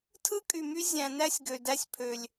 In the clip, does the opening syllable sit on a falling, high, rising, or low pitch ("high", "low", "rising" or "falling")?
high